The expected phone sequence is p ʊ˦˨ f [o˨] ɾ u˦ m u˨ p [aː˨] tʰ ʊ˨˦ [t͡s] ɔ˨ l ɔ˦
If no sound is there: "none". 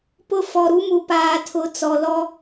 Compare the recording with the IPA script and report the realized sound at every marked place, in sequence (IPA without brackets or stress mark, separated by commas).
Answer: ɔ˨, aː˨, t͡s